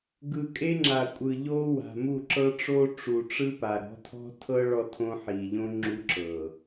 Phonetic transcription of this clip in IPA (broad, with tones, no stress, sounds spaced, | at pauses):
ɡ ɯ˨ kʼ e˦ ŋ͡ǁ a˨ kʷʼ ɯ˨ ʎ o˦ w a̤˨ m u˦˨ ǁ ɤ˦ ʈ͡ʂ o˦ ʈ͡ʂ u˨ ʈ͡ʂ ɯ˦ p a˨ ɾ ɔ̤˨˦ tʰ ɔ̤˦ tʰ ɤ˦ ɭ ɔ˦ tʰ õ˦ ħ i˨ ʎ õ˦ ŋ͡ǁ u˦ ǁ ɤ˨